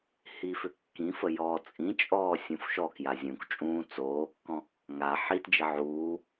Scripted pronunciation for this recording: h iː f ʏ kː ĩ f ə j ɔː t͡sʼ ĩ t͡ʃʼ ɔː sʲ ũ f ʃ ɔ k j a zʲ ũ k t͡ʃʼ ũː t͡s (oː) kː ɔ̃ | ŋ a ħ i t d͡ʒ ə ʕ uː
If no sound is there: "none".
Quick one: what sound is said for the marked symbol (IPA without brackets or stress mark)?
oː